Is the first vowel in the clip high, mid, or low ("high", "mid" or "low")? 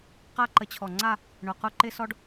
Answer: low